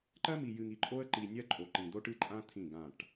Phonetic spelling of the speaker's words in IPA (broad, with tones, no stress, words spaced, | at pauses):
ǃɜ˦mi˨ jɨ˨ŋi˨ǃʼo˦ə̯ǃi˨ nʲɜ˦ǃʼo˨ǃĩ˨ d̪o˦ʈɨ˦ǃʼã˦ t̪ʰĩ˦˨ɡã˦˨ʈ